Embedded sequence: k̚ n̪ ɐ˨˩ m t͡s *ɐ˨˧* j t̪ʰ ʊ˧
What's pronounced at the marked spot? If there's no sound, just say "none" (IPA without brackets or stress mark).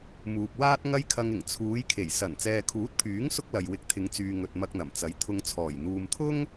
ɐ˨˥